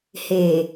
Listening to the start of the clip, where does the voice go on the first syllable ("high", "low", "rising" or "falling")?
low